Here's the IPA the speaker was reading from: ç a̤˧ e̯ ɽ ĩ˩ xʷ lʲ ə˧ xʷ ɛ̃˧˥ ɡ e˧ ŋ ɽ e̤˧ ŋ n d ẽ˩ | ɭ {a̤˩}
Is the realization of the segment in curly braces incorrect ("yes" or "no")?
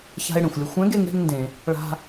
yes